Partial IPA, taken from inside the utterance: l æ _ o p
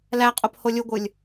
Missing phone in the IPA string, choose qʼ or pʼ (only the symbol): qʼ